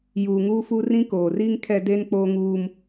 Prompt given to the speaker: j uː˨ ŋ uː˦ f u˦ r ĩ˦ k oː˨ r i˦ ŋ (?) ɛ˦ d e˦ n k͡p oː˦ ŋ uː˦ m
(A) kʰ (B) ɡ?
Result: A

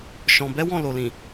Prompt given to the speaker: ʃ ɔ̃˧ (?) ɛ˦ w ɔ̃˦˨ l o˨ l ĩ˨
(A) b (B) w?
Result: A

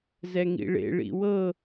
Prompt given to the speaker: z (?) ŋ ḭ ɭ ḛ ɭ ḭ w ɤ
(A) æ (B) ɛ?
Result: B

